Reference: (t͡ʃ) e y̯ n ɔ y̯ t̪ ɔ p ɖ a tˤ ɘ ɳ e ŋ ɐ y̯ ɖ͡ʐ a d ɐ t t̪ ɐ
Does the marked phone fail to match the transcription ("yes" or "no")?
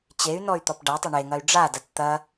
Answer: yes